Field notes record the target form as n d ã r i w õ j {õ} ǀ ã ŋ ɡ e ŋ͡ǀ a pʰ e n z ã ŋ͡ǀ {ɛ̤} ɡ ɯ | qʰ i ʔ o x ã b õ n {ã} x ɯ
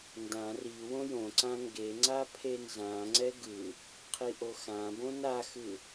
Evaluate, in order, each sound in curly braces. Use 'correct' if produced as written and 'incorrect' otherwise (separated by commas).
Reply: correct, incorrect, incorrect